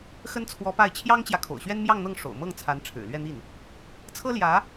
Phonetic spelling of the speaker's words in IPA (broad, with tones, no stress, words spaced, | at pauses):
xə˥nt͡sʰwɔ˧˥pa˥˩ɪ̯ t͡ɕʰjɑ˥ŋt͡ɕjä˨kʰo̰˨˩ʊ̯ɕɥɛ˥n mjɑ˥˧ŋn̪ɤ˥˩ŋʂo̰˨˩ʊ̯mɤ˥˩ŋ t͡sʰa˧˥nʈ͡ʂʰɻ̩˨˩lɥɛ˥˧n̪i˥˩n | t͡sʰɤ˥ljä˧˥